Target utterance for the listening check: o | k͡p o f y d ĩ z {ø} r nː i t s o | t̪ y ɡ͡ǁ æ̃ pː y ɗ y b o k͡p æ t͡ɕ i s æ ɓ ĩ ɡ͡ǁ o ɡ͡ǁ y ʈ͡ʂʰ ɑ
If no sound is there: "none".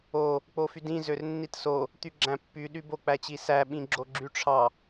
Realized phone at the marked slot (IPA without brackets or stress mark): ø